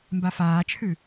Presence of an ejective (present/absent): absent